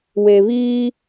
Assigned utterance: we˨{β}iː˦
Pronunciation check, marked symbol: correct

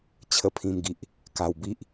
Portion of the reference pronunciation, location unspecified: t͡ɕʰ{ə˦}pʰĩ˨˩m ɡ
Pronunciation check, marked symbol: incorrect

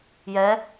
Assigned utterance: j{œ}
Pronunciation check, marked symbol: incorrect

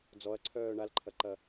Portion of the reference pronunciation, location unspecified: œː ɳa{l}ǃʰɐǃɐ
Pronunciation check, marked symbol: correct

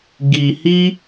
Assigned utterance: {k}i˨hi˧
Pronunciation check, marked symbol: incorrect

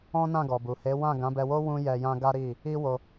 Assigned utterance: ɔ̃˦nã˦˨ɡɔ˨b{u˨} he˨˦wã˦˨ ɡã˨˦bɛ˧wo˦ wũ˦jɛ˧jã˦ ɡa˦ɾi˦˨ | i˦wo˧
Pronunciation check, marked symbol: correct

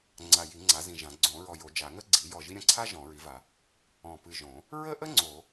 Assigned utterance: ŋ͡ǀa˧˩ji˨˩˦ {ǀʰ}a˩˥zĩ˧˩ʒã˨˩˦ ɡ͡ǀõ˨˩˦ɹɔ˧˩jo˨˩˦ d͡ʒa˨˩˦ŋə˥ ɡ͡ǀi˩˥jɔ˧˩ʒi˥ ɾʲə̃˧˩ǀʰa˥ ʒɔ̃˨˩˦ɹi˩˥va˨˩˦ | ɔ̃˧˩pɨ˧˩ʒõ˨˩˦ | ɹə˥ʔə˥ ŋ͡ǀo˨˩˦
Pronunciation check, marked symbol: incorrect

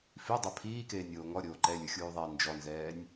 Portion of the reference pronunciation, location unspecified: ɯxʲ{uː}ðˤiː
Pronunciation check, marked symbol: correct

